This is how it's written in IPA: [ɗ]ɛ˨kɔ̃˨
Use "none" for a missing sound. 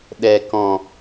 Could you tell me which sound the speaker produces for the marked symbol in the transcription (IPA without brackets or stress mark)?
ɗ